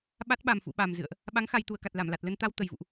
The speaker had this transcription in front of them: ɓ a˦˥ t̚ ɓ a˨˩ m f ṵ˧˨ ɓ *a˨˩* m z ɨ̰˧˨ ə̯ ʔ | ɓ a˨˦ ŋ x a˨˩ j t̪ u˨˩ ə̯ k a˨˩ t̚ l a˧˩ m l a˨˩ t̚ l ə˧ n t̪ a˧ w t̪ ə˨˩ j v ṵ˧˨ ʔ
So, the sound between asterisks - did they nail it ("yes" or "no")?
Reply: yes